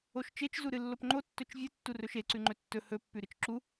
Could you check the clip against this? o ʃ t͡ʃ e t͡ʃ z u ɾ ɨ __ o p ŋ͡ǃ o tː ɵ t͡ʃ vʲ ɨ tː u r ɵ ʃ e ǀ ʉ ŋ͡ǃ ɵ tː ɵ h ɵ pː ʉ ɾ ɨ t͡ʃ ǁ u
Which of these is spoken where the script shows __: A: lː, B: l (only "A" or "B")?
A